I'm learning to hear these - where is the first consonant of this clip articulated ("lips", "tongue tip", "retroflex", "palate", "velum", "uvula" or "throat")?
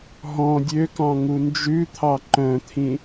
throat